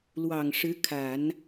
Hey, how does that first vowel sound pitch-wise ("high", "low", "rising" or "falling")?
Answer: low